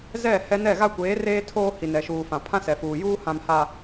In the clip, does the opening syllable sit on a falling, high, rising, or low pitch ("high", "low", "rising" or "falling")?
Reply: falling